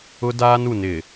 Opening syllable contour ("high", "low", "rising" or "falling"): high